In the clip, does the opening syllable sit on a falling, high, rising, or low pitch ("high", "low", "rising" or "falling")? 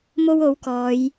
high